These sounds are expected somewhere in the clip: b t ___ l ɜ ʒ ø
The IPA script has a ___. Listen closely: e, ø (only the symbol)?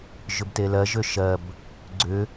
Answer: e